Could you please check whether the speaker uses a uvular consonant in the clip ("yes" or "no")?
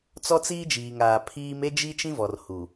no